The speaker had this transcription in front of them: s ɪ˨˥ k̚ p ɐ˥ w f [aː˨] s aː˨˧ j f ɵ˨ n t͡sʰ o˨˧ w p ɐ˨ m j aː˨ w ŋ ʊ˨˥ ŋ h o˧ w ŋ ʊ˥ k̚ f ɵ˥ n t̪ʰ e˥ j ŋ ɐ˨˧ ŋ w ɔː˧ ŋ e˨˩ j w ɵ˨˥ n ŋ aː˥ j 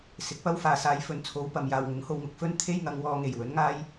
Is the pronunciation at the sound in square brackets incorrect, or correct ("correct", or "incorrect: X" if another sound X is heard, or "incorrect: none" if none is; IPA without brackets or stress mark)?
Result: correct